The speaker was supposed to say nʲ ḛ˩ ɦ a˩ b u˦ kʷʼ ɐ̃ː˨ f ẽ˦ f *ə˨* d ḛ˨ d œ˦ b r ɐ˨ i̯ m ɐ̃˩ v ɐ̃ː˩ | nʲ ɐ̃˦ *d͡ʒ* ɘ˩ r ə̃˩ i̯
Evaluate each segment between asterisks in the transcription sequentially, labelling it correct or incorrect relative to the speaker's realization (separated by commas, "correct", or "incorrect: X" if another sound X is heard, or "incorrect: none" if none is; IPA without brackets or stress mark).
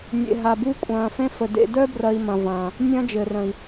incorrect: ə˩, correct